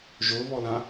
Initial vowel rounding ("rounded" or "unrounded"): rounded